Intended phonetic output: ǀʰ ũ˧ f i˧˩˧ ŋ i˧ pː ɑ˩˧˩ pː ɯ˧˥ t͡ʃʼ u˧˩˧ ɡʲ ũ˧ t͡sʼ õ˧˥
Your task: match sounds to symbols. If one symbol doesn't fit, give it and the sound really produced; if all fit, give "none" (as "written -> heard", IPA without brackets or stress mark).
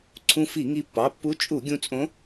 ɯ˧˥ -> u˧˥